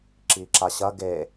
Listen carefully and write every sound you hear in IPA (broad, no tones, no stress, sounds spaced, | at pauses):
ǁ i ǁ a ɕ ɐ ɡ e